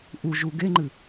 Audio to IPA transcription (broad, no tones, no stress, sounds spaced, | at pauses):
ʔ u ʒ u ɡ e ŋ͡ǃ ɨ